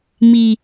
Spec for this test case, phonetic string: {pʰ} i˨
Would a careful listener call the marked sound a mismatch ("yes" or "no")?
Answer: yes